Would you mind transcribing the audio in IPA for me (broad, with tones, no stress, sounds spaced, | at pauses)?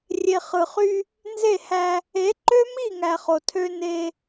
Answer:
rʲ e˨ χ ɯ˨ χ y˦ | n z e˦˨ h æ˦ | e˨˦ ǃ ø˦ m i˦˨ ŋ æ˨ χ o˨ tʰ ø˦ n e˦